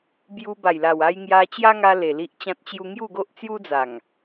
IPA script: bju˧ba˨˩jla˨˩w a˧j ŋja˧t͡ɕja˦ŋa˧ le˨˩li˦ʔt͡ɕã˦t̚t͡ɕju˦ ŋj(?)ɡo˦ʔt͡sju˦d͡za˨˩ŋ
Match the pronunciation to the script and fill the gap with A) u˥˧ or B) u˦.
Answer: A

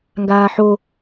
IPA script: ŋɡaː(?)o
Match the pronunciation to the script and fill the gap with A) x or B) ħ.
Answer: B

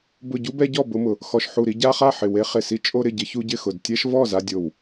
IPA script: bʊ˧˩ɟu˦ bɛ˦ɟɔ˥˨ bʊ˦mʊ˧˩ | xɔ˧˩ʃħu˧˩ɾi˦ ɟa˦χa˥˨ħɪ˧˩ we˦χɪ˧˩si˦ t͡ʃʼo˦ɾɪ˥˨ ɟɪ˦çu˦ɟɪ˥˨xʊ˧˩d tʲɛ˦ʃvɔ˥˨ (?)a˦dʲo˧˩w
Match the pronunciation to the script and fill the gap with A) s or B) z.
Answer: B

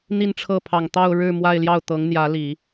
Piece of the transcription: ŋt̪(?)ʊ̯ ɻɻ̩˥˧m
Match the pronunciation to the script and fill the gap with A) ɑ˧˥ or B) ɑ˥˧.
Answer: B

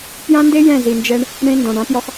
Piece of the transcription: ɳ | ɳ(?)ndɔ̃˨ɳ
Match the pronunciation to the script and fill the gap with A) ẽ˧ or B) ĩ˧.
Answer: A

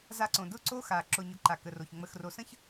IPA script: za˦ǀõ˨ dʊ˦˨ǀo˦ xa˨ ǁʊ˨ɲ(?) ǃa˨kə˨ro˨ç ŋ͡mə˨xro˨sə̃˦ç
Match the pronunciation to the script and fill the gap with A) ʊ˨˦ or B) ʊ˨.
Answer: A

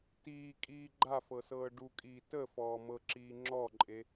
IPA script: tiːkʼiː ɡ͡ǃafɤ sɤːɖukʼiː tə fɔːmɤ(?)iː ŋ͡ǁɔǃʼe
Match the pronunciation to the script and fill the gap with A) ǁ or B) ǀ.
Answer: A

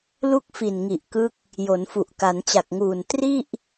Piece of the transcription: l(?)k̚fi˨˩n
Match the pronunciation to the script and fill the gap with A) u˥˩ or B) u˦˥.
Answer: A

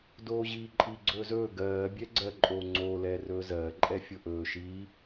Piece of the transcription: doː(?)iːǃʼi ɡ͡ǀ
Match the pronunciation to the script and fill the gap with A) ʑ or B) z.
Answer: A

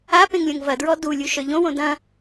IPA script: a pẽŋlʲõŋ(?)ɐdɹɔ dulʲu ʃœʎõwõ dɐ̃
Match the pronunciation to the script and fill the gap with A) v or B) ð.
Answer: A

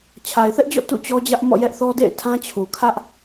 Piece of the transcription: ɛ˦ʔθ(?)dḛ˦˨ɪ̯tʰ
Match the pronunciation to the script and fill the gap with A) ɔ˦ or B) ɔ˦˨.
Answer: A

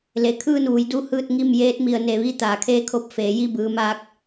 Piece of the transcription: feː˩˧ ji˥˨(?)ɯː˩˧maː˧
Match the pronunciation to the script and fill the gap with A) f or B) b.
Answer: B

